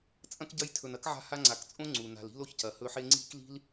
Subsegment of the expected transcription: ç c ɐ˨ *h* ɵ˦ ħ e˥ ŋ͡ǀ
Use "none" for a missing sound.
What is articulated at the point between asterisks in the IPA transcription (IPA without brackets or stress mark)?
h